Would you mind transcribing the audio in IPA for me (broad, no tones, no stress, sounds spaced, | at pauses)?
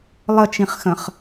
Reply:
lˠ ə t͡ʃ ĩ χ x ə̃ χ